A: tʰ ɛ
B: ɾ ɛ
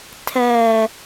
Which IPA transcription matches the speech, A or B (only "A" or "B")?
A